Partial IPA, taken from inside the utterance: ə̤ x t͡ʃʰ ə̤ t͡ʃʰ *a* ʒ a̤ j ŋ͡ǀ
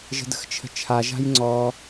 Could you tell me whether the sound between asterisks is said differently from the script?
no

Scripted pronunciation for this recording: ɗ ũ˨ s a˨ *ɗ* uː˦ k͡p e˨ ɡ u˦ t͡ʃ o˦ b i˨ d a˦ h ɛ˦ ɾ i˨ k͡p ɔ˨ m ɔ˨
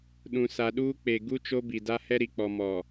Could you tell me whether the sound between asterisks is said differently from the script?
no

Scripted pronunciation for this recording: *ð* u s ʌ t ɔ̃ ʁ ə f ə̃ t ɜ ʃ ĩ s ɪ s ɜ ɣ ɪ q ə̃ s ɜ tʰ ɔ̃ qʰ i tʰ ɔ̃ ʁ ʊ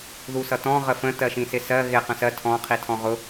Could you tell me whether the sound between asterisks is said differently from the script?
no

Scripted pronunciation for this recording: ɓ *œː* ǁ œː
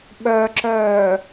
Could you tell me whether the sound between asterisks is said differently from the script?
yes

